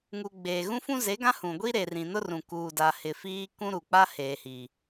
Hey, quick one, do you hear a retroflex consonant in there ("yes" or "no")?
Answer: no